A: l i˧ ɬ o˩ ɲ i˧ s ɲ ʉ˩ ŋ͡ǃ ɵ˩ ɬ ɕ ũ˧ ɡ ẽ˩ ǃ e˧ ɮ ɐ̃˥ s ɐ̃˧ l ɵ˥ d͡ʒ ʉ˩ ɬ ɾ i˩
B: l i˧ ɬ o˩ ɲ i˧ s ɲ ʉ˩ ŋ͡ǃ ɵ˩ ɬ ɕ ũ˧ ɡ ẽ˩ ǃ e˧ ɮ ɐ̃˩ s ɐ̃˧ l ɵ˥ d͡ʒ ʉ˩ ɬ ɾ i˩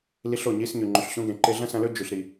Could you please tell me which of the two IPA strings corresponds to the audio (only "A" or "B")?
A